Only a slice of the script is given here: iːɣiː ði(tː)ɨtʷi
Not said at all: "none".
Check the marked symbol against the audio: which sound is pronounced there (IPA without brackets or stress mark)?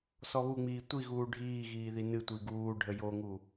n